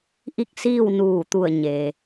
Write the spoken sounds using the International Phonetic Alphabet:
ʔi˥˨k̚siː˥˨w nuː˧˩t̪u˧˩ə̯ ɲeː˩

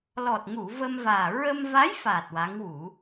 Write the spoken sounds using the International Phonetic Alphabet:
lɔ˨˩t̚ŋu˨˩˨ və˧mvaː˨˩ ɹə˧mva˧˥jfa˨˩t̚ wa˧˥ŋwu˨˩˦

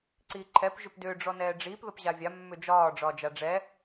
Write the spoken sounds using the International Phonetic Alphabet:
ǀiːǃʰɛp ʒʏpdʏː ɖ͡ʐɔnɛːɖ͡ʐiːp ðəpʑavʲa mːʏd͡ʒɒː ɖ͡ʐɒːd͡ʒaɖ͡ʐɛ

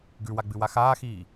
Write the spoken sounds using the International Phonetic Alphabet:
ɡʉwaɡ͡bɨwa xaːxiː

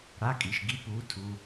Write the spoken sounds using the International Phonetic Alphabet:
ɽa˧˥˧kʼi˨ʃ ɡi˧˥˧puː˨˥ tʰu˨

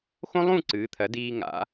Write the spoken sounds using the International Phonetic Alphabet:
xõ˥lˠũ˥˧ ǀɨː˩˧t̪ʰɜ˩˧ diː˧ ŋa̰˩˧

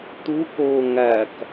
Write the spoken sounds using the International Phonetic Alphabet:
t̪ukoː ŋæk

